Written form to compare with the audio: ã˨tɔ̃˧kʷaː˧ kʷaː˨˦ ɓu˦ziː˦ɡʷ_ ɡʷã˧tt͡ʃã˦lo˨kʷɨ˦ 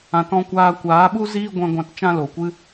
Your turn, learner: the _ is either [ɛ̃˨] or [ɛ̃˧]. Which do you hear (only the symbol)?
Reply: ɛ̃˧